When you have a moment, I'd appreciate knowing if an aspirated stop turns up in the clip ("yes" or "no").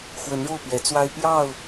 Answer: no